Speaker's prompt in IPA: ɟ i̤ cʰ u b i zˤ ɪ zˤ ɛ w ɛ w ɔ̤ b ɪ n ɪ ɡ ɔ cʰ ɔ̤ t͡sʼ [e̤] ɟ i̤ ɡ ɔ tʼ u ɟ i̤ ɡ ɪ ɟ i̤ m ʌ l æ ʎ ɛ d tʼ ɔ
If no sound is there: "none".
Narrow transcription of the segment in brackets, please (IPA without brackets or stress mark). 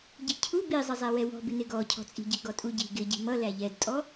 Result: i̤